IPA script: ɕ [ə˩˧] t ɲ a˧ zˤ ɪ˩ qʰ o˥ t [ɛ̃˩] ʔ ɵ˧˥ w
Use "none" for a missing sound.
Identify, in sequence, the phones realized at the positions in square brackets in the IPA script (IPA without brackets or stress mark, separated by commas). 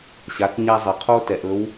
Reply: a˩˧, ɛ˩